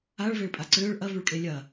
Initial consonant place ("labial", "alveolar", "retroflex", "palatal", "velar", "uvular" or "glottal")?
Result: retroflex